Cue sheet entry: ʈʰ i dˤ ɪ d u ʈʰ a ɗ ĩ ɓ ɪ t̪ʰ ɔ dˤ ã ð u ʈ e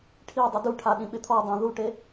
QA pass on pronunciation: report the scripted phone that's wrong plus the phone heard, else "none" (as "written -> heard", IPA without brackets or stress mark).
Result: none